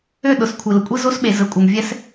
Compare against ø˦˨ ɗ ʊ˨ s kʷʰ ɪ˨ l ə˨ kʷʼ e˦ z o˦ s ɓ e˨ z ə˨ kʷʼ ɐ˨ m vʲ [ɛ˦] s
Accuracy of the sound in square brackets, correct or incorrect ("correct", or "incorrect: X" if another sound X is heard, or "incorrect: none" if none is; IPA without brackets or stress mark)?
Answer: correct